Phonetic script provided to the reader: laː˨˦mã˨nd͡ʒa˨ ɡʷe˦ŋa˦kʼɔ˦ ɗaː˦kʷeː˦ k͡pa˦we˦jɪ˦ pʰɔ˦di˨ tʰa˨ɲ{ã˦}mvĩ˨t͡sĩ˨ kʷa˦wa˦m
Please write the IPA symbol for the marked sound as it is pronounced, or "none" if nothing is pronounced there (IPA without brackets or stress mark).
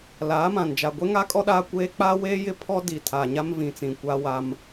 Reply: a˦